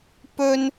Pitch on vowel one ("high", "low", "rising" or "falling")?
high